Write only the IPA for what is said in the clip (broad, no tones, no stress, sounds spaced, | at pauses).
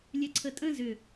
lʲ ɛ ǀʰ ə tʼ ə̃ z ʏ